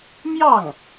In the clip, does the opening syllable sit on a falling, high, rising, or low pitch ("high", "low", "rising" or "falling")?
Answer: falling